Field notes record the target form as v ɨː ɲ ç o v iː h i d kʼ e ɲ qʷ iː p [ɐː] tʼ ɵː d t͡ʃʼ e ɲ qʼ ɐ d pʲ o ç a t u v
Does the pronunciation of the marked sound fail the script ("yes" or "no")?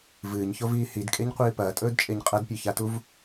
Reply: no